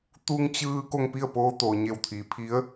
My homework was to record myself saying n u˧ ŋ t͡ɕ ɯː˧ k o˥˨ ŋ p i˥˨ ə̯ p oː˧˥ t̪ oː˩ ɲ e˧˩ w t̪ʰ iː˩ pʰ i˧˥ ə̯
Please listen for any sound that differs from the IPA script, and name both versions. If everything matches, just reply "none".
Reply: n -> t̪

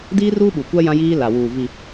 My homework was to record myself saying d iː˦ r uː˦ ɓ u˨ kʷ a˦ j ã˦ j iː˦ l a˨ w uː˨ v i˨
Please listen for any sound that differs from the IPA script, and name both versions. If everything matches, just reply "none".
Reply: none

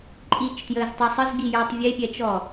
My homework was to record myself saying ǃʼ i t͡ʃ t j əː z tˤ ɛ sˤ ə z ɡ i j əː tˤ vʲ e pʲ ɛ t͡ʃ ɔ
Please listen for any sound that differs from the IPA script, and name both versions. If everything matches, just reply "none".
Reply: none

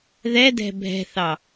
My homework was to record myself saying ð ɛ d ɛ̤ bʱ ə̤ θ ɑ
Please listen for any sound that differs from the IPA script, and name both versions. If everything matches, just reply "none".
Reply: ə̤ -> ɛ̤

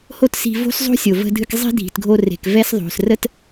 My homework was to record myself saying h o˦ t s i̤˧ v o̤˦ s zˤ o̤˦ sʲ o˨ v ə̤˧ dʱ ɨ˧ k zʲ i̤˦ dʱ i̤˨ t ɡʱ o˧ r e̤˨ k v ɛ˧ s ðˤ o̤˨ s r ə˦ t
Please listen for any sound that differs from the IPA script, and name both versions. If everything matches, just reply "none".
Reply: zʲ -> zˤ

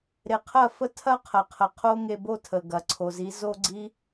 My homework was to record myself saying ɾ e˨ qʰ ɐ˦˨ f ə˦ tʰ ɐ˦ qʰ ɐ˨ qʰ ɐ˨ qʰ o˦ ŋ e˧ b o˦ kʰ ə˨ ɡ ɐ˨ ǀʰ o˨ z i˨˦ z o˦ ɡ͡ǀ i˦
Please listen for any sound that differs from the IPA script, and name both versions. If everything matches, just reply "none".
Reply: kʰ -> tʰ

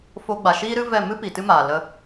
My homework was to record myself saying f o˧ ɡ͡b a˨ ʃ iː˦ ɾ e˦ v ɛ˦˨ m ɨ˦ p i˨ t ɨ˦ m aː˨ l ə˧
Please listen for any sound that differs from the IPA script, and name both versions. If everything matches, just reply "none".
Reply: e˦ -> ɨ˦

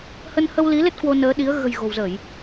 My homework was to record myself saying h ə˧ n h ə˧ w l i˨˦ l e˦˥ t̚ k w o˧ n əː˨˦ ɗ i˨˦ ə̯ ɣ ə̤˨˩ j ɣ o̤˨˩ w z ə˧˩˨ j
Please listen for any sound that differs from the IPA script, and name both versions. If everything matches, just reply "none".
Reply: none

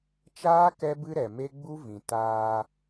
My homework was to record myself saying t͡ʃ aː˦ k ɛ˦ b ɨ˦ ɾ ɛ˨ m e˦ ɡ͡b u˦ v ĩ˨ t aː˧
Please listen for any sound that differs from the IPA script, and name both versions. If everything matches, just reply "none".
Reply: none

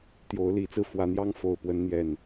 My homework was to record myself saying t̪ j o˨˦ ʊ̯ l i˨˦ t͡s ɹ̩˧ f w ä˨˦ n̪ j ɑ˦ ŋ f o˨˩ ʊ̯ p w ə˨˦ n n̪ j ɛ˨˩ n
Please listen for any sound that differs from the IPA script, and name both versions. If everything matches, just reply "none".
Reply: none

